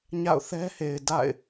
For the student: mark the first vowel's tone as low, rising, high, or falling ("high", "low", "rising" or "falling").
falling